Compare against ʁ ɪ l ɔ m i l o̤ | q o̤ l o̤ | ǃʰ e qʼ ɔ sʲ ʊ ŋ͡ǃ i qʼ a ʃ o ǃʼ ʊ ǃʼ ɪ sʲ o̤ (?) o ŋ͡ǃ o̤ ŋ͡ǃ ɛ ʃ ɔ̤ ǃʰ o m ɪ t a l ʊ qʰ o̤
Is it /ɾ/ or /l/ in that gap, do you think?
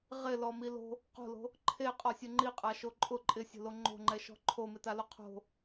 l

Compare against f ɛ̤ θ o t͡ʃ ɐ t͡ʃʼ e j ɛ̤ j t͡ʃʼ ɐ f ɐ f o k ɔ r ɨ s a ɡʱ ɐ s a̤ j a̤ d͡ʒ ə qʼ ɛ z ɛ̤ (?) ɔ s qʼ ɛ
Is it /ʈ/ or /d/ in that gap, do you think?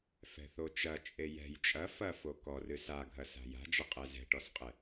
ʈ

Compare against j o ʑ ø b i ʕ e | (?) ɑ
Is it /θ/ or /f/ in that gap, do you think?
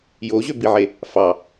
f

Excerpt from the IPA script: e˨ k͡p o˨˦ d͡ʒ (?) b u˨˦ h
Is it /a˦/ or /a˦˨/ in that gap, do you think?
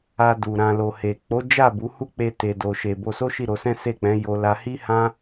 a˦˨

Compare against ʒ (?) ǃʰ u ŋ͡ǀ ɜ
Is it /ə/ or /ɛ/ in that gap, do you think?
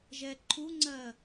ɛ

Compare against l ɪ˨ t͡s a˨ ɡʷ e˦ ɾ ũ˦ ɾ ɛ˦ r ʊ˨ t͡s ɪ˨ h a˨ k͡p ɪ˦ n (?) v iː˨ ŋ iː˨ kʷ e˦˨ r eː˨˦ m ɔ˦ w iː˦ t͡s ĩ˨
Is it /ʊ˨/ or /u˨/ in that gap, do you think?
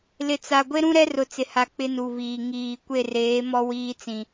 u˨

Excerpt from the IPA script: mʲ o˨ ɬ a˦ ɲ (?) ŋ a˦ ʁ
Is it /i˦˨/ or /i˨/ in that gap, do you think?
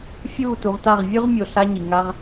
i˨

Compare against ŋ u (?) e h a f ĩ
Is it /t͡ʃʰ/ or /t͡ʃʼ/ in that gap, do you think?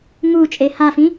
t͡ʃʼ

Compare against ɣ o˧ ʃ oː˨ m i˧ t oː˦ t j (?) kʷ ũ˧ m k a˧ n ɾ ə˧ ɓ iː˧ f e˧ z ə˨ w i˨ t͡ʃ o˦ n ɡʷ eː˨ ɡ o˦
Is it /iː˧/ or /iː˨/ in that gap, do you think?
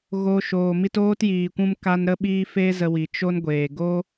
iː˨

